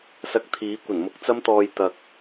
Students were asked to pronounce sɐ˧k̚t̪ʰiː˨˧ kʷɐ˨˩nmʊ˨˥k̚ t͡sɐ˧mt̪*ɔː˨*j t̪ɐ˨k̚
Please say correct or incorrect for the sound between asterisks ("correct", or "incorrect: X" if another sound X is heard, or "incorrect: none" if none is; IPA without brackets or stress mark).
correct